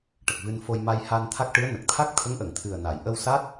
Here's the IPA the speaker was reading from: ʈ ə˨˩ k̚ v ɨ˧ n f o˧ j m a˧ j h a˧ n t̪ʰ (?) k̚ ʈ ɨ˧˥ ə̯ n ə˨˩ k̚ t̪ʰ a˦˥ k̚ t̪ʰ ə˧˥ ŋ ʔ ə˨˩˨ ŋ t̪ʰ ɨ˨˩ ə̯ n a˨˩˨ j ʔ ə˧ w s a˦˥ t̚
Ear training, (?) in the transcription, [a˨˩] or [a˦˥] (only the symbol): a˦˥